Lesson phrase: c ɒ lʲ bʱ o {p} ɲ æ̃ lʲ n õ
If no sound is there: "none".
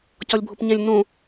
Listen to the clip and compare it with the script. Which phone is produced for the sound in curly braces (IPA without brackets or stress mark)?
p